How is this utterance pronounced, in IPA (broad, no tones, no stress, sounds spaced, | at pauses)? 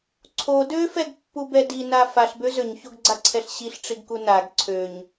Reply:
ǀʰ o d ø f ɛ ɡ pː u b ɛ d i n a f a ɬ b ø z ø ɲ ç o ɡ ɡ͡ǀ a ǀʰ ɛ ɬ ɕ i ɬ ʈ͡ʂ i ɡ k u n a ɡ ǀʰ ø ɲ